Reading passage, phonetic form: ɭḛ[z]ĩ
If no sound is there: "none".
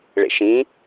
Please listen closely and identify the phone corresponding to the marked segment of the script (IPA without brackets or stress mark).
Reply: ʃ